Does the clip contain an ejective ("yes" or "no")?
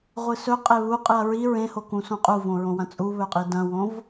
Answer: yes